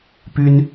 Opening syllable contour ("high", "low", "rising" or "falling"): high